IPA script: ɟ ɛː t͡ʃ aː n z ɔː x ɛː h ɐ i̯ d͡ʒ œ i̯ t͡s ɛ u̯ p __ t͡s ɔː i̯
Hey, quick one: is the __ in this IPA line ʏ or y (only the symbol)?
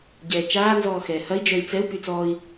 y